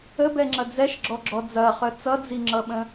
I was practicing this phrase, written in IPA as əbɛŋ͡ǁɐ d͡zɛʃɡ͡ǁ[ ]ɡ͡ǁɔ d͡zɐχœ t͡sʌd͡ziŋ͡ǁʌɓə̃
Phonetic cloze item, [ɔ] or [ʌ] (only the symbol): ɔ